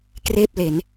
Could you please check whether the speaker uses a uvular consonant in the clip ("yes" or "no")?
no